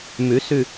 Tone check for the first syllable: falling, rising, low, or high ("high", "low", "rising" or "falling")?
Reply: rising